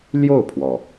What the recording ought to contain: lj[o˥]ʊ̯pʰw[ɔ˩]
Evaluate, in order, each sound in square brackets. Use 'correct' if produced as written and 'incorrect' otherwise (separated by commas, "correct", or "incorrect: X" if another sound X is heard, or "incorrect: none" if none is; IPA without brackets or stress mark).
incorrect: o˥˩, correct